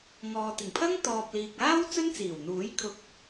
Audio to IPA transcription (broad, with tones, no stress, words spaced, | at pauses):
ŋɔː˨t̪ɪ˨˩ŋpʰɐ˥ŋ t̪ɔː˨p̚liː˨k̚aː˥w t͡sɵ˥nt͡siː˨˩wn̪uː˨˥j kʰʊ˨k̚